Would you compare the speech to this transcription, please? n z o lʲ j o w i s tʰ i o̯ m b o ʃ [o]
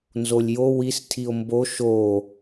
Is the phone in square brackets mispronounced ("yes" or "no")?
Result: no